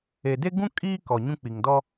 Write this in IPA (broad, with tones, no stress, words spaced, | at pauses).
e˨de˦ɡũ˦ kʼiː˦kɔ˨ ɲũ˦k͡pi˨ŋdɔ˦